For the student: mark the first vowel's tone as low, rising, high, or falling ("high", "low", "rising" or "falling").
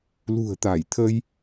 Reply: low